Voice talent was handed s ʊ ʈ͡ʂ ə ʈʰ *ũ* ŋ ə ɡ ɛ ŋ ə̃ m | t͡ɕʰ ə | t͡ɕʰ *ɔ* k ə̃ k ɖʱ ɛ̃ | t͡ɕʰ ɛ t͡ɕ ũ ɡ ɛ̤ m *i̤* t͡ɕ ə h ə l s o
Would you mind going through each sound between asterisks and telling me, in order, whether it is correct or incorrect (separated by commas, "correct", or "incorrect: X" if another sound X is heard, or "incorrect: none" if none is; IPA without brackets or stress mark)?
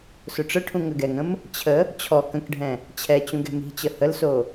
correct, correct, correct